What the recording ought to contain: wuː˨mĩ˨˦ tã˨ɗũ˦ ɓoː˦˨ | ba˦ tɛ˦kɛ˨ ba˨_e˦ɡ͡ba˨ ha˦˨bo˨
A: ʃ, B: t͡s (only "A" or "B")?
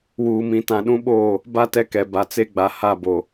B